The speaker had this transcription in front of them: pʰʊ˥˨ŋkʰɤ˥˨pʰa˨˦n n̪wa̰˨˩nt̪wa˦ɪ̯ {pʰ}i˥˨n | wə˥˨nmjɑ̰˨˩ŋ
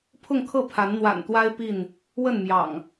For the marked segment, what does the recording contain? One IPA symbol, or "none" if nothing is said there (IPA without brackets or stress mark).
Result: p